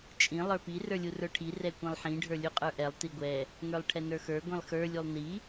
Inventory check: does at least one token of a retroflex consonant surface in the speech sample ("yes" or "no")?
yes